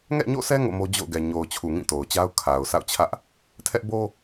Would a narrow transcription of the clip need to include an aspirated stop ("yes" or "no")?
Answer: yes